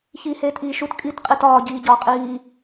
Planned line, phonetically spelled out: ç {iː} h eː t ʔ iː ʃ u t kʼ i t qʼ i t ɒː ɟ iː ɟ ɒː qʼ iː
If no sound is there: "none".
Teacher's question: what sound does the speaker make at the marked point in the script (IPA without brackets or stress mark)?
iː